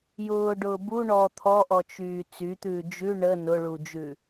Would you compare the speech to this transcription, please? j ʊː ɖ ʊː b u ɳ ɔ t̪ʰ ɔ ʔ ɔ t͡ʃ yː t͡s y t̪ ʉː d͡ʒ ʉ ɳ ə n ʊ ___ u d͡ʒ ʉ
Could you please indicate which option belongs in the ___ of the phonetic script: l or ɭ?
ɭ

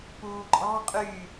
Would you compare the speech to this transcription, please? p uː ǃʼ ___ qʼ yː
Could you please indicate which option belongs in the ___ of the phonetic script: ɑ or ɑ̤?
ɑ̤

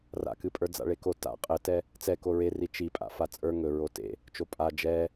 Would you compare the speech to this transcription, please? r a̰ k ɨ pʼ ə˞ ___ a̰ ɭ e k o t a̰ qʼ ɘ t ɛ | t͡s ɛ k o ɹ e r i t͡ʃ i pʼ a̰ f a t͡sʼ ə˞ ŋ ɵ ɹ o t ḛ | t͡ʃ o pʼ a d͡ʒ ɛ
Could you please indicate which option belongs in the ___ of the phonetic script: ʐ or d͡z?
d͡z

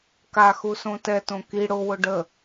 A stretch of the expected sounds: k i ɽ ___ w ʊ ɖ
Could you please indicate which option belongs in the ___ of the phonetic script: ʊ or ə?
ʊ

